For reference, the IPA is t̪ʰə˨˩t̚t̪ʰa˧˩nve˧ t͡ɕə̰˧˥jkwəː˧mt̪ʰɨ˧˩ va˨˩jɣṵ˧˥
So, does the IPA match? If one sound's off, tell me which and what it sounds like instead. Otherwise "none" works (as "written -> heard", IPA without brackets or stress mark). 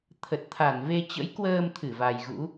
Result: none